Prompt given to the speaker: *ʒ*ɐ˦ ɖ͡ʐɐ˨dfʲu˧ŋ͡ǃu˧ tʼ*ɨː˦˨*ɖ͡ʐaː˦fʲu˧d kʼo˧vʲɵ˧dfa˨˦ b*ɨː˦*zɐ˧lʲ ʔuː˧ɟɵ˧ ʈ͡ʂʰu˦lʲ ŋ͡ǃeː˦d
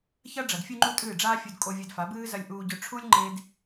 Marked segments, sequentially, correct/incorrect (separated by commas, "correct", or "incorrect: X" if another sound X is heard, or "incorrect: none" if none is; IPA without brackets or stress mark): incorrect: ç, correct, correct